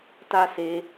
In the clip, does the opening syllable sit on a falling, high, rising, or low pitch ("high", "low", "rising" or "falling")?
high